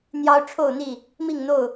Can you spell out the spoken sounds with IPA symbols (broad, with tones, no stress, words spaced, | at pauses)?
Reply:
n̪jɑ˦ʊ̯ ʈ͡ʂʰo˥˨ʊ̯n̪i˥˨ | mi˥˨ŋn̪o˥˨ʊ̯